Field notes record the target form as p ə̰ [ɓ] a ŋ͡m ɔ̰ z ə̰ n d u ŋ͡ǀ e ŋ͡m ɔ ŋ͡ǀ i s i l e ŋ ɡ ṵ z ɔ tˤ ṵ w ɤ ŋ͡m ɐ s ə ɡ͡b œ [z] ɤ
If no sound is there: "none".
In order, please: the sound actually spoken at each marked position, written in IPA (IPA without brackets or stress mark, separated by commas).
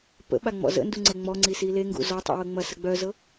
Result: ɓ, z